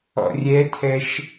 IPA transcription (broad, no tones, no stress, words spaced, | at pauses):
ɔ̰rʲɛtʰɛʃ